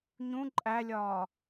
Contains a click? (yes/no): yes